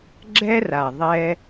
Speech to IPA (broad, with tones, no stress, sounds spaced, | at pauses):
ɡ͡ǁ ɛ˦ r a˨ ðˤ ɛ˧